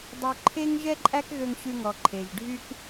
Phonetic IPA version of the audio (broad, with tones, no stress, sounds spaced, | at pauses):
dˤ o˧ ǃʰ e˦ ŋ ʒ ɛ˦ ǃʼ æ˦ k ɣ ø˧ ŋ ɕ ʉ˧ ŋ ɔ˨ ǃʰ e˨ ʒ ɖʱ y˦ k